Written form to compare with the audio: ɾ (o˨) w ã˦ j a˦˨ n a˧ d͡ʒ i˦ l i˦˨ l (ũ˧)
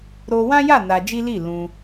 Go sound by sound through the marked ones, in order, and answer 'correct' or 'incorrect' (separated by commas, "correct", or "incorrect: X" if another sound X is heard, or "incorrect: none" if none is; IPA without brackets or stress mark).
incorrect: o˧, correct